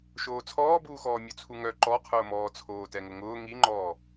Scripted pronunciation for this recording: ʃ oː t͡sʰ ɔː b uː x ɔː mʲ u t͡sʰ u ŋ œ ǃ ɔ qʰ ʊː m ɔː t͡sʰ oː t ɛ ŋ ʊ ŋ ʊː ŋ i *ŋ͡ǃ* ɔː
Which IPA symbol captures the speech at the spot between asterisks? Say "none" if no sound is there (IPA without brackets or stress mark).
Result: ŋ͡ǃ